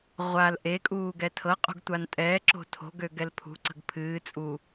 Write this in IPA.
ʁʷ a l ʔ e kʼ uː ɡ ɛ tʰ ɤ qʼ ṳ ɡ tʷ a n tʼ ɛː ǁ o̤ tʰ o̤ ɡ ø ɡ ɛ l pʰ ṳ ǀ ə̤ ɡ pʰ ɨː t͡sʼ u

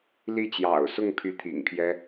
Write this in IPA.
l i˥˩ t͡ɕ j ɑ̰˨˩ ʊ̯ s ʊ˥˧ ŋ pʰ y˥˩ t̪ʰ ḭ˨˩ ŋ pʰ j ɛ˥

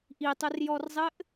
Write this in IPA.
ʔ i tˤ ɵ r j ɔ r zˤ ɘ ʔ

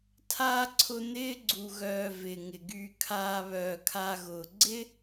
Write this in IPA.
tʰ aː˥ ǀʰ ʊ˦ n̪ ɪː˥ ɡ͡ǀ u˨ ɣ œː˨ v ɪː˩ ŋ ɪ˩ ɡ yː˨ kʰ aː˨ β œː˩ kʰ aː˨ ɣ ʊː˩ ɡ͡ǀ ɪ˥

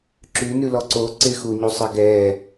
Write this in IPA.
ǁ ʉ n ʉ l ɔ ǀ o ǀ ɪ x u ɲ u sˤ ɪ ɡ ɛ

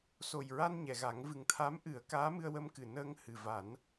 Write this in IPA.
s o˨˩ j ɹ a˧ n ɲ ɛ˨˩˨ ɣ a˨˩˦ ŋ v ɨ˨˩ ŋ t̪ʰ a˧˥ m ʔ ɨ˨˩˦ ə̯ k aː˧˥ m ɨ˧ ə̯ w ə˧ m k ɨ˨˩ n əː˧ ŋ h ɨ˨˩ v a˨˩˦ n

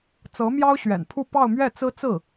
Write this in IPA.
t͡s ɤ˧˥ m j ɑ˥ ʊ̯ ɕ ɥ ɛ̰˨˩ n pʰ u˥˧ p ɑ˥˧ ʊ̯ m ɥ ɛ˥˩ t͡s ɹ̩˥ t͡s ɹ̩˥˩

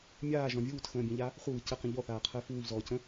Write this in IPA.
mʲ aː ʒ ɔ̃ vʲ uː t x ə̃ː bʲ ə̃ ʎ a | χʷ ə β ɨ c ə q ə̃ ʎ ɔ θ aː qʰ əː f uː ʎ z ɔː c ə̃

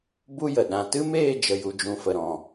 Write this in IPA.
b u˦ j ə˨ ɗ ã˨ t ɨ˦ m eː˦˨ d͡ʒ ə˨ j u˨ d͡ʒ ũ˨ f ə˨ ɾ ɔ̃˨

